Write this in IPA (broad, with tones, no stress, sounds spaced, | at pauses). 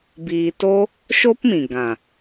b iː˧ t o˦ | ʃ o˦ p m ĩ˨ ɡ ã˨